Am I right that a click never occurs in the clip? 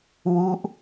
yes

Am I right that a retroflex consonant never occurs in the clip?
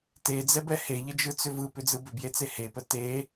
yes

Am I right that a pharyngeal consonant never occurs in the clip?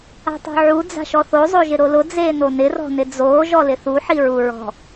no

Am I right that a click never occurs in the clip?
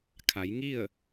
yes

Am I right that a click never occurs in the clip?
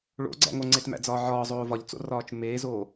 no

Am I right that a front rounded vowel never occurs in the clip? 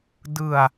yes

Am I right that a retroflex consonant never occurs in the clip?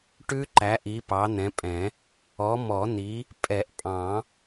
no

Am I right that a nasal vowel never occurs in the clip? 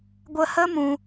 no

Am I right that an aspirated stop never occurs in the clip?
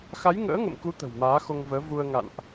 yes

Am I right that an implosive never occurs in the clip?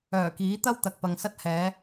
yes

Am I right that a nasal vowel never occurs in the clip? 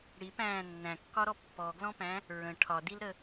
no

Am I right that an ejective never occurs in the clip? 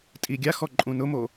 no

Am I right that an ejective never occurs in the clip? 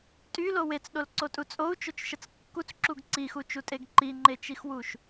no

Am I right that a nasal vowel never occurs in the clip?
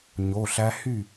yes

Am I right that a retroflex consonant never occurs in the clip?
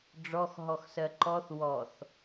no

